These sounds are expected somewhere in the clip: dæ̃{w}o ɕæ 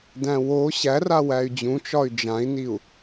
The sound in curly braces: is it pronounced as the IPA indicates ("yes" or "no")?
yes